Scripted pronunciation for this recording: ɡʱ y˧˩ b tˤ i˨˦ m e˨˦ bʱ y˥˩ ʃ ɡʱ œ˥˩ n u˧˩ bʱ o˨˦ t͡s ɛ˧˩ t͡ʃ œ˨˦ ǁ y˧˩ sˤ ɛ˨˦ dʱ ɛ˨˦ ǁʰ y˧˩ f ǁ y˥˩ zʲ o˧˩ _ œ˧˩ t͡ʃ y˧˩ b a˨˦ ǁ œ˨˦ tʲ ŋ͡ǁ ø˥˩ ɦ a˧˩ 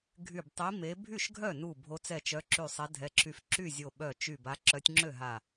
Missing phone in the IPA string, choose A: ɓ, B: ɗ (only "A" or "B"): A